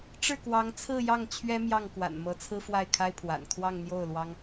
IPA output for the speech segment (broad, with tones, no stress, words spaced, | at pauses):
ʈ͡ʂɻ̩˥˩kwɑ˧˥ŋt͡sʰɹ̩˥˧ jɑ˥˩ŋt͡ɕʰɥɛ˥ mjɑ˥˩ŋkwa̰˨˩nmɤ˧˥t͡sʰɹ̩˥ fwa˥˩ɪ̯kʰa˥ɪ̯pʰwa̰˨˩n kʰwɑ˥˧ŋn̪jo˥˩ʊ̯lwɑ˥ŋ